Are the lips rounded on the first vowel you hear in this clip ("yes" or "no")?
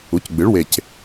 yes